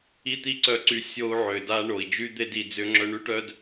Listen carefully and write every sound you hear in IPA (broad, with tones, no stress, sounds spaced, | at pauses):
i˥ t̪ i˥ ǀ œ˧ ǀ y˧ sʲ o˧ u̯ ʕ ʏ˩ d a˧ ɳ o˩ i̯ d͡ʒ y˥ d̪ e˥ d i˧ d͡z ʏ˥ ŋ͡ǁ œ˥ ɳ y˥ ʈ œ˥ d